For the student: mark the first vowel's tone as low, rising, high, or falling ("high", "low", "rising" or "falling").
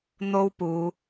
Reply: high